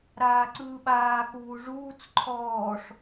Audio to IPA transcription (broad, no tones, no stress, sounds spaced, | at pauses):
ɾ aː ǀ ɯː ɓ aː k uː ʐ uː t͡s ǃʰ ɔː ʂ